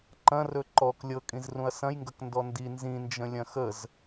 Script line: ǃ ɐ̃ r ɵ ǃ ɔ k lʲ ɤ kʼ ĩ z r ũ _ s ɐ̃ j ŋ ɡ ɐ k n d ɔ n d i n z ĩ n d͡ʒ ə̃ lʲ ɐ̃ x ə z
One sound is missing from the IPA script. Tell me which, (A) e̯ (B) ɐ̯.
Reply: B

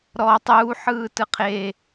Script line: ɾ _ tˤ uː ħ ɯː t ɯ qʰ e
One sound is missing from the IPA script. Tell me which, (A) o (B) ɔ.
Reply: B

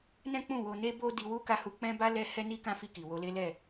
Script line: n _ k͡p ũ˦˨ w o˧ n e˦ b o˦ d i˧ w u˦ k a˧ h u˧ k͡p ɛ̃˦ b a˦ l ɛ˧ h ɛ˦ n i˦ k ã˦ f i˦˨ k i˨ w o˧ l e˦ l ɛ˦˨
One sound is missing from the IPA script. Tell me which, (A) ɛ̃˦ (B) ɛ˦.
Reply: A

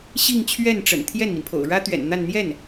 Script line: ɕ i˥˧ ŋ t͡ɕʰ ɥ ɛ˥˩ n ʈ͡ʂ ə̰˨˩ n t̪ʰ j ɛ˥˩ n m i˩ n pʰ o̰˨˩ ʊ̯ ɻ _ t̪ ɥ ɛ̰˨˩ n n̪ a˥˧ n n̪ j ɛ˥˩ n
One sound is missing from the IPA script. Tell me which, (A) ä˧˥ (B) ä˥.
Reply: B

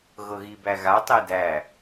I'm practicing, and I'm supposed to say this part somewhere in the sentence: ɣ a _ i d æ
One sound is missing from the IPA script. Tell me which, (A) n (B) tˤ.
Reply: B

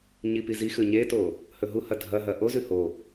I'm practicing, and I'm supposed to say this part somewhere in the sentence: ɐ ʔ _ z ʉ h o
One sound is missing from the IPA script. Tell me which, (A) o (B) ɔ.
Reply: A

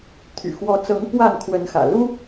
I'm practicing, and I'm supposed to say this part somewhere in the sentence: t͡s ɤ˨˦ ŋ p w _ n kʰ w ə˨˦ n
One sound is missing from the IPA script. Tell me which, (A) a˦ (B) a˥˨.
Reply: B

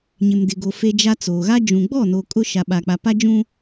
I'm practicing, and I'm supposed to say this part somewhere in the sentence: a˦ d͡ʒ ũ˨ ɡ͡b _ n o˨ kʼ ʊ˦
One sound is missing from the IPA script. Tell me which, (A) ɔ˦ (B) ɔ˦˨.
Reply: B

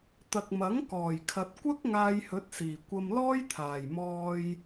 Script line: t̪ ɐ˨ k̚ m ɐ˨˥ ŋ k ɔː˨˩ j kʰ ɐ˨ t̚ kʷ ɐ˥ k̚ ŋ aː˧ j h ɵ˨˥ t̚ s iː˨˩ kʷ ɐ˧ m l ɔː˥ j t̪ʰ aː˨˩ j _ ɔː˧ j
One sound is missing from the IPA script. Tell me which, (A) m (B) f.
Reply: A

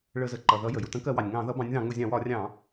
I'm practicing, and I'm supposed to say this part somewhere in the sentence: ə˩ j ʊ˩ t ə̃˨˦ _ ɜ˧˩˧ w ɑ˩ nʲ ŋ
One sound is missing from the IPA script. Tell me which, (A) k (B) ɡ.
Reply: A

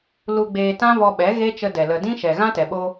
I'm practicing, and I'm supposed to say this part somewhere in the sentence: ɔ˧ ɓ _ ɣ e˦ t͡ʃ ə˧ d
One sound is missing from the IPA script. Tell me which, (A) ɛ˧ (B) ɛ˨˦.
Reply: B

